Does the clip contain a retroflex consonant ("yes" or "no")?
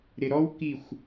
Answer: no